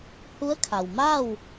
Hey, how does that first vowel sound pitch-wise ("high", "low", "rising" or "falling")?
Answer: rising